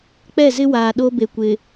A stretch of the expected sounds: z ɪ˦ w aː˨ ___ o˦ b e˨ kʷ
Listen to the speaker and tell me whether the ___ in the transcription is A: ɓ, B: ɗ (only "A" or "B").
B